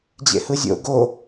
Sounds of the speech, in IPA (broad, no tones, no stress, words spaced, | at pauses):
d͡ʑḛhɯzʲo̰ ɡo